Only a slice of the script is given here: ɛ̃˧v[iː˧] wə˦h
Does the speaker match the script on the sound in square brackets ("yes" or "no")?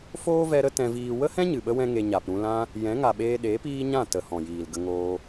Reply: yes